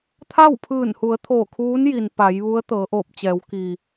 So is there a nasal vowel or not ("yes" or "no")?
no